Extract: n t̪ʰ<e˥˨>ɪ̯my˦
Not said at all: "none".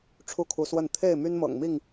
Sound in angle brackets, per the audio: e˥˨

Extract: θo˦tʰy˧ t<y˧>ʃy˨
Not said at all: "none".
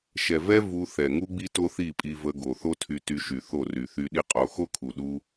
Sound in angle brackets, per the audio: y˧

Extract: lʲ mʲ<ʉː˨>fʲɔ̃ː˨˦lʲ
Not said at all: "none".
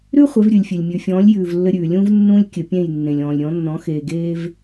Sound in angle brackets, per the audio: ʉ˨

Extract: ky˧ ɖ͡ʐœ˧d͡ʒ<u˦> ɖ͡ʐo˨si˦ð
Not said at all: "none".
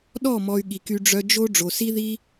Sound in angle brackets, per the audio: o˦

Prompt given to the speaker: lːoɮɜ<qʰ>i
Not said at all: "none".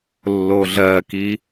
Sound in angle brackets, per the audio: k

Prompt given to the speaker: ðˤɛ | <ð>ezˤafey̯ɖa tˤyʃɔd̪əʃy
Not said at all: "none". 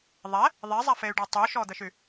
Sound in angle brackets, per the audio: ðˤ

